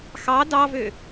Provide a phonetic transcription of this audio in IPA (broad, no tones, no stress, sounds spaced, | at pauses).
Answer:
x ɑ d ɑ v ø